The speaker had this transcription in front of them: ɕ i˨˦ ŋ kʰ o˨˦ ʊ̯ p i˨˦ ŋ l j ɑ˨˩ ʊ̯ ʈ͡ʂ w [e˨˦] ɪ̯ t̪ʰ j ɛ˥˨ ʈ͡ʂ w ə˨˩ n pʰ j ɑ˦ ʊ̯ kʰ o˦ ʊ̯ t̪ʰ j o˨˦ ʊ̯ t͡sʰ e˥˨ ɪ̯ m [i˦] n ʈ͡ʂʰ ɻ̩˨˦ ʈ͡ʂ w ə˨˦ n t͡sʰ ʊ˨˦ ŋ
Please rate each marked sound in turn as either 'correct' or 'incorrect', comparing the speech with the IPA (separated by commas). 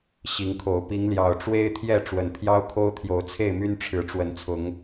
incorrect, incorrect